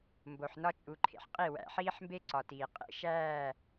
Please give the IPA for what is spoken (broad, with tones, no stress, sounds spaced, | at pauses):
m b o˨ ħ n ɒ˦ t͡ʃʼ u˨ ǃʰ ḛ˨ ħ qʼ i˦˨ w æ̰˨ ħ iː˦ ħ m b e˦ ǀ ɒ˨ t iː˨ qʼ ḛ˦ ʃ æː˦˨